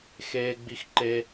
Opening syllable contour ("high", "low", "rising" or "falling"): high